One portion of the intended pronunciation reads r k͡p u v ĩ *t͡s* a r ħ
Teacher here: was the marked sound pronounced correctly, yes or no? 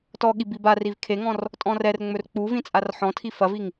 no